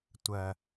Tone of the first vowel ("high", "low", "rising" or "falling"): low